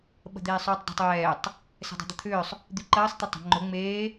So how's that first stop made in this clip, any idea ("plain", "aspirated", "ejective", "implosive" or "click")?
implosive